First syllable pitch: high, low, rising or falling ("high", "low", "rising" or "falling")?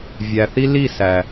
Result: low